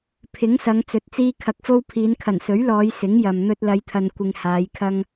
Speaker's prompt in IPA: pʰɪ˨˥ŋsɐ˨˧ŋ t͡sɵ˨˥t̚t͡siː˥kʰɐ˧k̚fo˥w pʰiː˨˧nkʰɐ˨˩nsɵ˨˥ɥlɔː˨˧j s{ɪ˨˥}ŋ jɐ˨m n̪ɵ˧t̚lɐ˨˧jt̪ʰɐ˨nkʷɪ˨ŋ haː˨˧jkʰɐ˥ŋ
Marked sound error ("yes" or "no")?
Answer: no